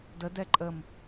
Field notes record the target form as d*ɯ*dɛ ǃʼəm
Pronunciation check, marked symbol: incorrect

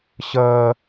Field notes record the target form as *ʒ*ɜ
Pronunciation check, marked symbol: incorrect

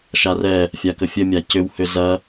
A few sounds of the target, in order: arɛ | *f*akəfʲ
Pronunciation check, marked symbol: incorrect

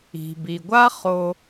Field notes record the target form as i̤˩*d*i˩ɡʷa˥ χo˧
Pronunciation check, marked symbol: incorrect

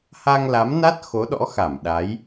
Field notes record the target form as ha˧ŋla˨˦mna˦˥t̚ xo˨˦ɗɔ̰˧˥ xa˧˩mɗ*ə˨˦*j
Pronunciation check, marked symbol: incorrect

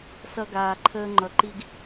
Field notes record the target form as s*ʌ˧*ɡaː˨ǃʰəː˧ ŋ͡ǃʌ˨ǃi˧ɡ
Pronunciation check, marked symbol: correct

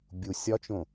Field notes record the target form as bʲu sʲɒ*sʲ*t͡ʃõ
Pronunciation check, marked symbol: incorrect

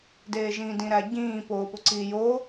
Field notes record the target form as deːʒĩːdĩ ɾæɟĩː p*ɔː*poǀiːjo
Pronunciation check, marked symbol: incorrect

